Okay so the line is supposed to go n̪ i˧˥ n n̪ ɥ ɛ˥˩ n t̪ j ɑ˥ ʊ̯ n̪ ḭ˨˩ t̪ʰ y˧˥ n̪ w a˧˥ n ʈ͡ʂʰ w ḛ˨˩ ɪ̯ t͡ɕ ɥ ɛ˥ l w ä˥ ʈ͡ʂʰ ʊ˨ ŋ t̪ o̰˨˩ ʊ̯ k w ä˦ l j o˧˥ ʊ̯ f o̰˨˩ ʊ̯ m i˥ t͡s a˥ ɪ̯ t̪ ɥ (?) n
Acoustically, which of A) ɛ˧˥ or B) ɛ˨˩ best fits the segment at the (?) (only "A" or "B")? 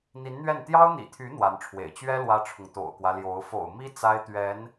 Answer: A